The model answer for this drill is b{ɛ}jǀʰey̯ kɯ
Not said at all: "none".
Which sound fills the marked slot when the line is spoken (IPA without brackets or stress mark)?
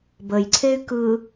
ə